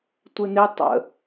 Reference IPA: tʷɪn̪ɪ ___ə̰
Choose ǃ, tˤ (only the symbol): tˤ